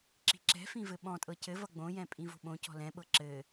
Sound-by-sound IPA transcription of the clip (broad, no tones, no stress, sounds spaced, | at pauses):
ǁ i̤ ǁ ɛ̤ f ĩ v ɘ ɓ ɔ̃ tʼ ɤ c ɘ v ʌ ɡ͡b õ j ɛ̃ pʼ ĩ v o̤ ɓ õ c ɔ̤ l ɛ̃ ɓ ɤ ǁ ɘ